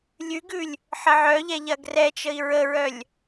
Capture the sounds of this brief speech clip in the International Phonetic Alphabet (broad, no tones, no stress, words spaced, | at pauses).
lʲʉɡʉlʲ | ħəʕœʎɛ ʎɐɡrɛt͡ʃəi̯ ɹəɹœlʲ